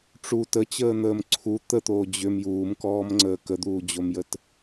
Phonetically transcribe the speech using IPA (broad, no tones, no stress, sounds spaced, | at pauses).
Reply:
ʈ͡ʂ u t ə t͡ɕ əː n̪ əː m ǀʰ u t̪ ə t̪ oː d͡ʑ ʏ m j uː m k ɔː m ŋ͡ǀ əː k ə d̪ uː d͡ʑ o m j ə t